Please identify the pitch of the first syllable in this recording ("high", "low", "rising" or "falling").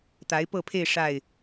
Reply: rising